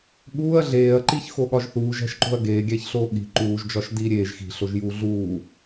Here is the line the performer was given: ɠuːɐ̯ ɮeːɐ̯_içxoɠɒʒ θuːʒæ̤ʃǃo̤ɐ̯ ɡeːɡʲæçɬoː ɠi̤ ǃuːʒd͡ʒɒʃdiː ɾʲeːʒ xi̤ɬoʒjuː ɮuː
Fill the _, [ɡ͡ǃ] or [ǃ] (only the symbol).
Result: ǃ